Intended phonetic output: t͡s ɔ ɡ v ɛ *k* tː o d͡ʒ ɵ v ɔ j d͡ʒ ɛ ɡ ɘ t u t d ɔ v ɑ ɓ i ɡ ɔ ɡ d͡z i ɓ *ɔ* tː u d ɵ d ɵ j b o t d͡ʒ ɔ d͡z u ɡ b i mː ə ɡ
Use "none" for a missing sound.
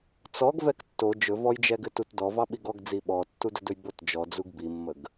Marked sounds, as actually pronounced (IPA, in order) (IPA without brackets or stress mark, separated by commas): k, ɔ